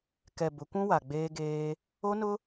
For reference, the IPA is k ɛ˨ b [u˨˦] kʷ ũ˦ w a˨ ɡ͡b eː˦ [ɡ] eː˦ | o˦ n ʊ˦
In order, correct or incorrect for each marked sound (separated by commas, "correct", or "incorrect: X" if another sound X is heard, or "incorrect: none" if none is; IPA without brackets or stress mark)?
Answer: incorrect: ʊ˨˦, correct